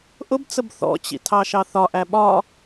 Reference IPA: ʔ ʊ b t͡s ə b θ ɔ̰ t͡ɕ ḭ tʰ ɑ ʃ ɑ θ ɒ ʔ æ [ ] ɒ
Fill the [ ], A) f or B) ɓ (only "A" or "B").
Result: B